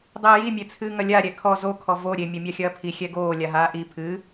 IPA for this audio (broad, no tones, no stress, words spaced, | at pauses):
dˤiːji mʲet͡sʰɨːŋɐlʲa ɾʲɛkʰɔ zo kʰɔvo ɾʲe mʲɐmʲaxʲɐːpʰi xʲɛɡoː lʲaɦaːʔi pʰɨ